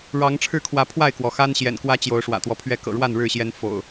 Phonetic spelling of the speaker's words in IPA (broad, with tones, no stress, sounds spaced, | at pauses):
ɻ ɑ˨˦ ŋ ʈ͡ʂʰ ɻ̩˥˨ kʰ w ä˨˦ pʰ w a˥˨ ɪ̯ k w ɔ˩ x a˦ n ɕ j ɛ̰˨˩ n k w ä˦ t͡ɕ j o˨˦ ʊ̯ ʂ w ä̰˨˩ t̪ w ɔ˦ pʰ ɥ ɛ˥˨ k ɤ̰˨˩ ɻ w a˥˨ n ɻ ɻ̩˥˨ ɕ j ɛ˦ n f o̰˨˩ ʊ̯